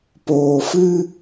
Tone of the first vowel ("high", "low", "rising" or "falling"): low